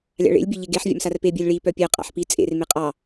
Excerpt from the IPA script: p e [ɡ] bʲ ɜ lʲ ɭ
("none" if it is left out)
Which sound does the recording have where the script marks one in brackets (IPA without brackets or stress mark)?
none